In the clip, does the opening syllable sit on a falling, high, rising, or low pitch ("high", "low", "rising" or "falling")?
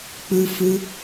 high